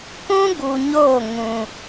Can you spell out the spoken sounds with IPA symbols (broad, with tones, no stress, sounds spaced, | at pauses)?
k ũ˦ ɡ u˨ ɲ o˦˨ ŋ ũ˨